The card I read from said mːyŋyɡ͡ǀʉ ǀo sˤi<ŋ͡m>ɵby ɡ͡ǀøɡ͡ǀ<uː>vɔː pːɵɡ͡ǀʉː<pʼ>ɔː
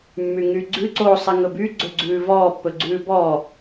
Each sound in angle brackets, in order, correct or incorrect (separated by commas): incorrect, incorrect, incorrect